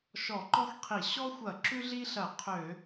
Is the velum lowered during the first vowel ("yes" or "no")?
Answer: no